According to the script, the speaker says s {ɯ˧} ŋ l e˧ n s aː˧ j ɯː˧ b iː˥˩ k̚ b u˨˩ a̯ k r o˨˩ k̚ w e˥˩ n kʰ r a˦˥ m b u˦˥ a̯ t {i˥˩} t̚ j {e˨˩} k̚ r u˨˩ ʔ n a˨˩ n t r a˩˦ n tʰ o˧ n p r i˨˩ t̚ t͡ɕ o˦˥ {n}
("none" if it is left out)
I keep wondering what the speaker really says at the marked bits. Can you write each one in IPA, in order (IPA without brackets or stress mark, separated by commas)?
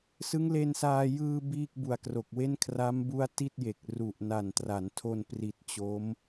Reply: ɯ˦˥, i˥˩, e˨˩, m